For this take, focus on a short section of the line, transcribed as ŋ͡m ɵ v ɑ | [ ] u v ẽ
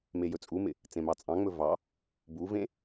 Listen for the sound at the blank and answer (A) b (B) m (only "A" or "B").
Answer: A